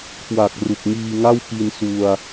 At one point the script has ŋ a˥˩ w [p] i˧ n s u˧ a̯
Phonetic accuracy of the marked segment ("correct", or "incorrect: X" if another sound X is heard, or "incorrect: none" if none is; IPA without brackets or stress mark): correct